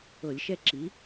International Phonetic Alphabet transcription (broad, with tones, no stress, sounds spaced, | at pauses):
ɤ˧˩˧ lʲ ʃ ɛ˥ ǁ i˩˥